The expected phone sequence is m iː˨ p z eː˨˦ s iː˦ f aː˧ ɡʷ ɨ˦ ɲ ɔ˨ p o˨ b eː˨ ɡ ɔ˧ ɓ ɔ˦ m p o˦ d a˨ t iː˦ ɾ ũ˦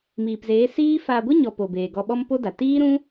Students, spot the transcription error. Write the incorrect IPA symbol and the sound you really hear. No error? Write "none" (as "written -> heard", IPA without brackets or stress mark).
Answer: none